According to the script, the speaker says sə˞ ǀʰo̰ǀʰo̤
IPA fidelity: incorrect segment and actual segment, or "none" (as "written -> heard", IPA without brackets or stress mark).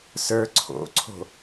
none